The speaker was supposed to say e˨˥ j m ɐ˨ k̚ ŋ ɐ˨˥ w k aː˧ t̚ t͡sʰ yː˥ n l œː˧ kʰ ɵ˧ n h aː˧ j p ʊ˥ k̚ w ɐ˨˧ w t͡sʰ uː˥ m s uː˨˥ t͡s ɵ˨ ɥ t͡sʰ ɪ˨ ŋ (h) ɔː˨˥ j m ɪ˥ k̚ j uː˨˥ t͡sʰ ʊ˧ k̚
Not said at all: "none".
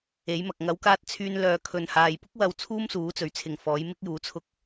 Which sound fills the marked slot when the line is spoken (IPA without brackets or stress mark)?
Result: f